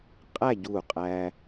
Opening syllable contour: falling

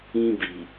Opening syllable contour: high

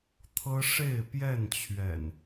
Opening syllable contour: high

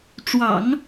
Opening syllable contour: low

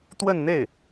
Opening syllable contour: falling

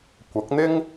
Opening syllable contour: rising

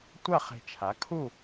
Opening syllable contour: falling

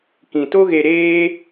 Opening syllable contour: low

